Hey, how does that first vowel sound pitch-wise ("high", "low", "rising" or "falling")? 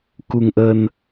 low